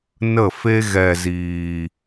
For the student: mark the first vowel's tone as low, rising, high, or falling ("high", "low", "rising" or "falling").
falling